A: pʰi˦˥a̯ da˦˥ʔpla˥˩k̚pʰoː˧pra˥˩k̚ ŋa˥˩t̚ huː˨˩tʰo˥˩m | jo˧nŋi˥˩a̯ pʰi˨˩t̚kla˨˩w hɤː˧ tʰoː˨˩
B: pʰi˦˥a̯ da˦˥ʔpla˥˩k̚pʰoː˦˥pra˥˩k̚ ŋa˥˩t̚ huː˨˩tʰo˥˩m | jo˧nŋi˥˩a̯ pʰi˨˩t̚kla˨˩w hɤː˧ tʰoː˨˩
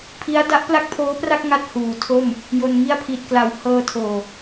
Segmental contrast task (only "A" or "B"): B